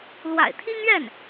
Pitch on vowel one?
low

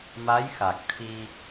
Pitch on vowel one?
rising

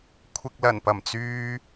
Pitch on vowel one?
low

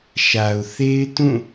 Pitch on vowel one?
low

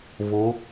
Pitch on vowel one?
rising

